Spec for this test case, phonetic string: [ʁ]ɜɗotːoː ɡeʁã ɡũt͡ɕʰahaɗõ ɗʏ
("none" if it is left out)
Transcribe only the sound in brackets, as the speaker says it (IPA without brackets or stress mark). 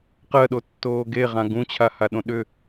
q